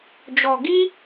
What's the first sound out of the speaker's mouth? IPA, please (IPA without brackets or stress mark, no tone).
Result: d͡ʒ